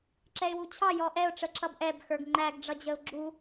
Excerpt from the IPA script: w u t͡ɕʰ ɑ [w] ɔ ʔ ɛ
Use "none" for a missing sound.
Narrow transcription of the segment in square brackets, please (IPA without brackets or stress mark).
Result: j